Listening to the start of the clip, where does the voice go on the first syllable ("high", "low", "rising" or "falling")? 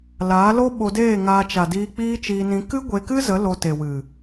rising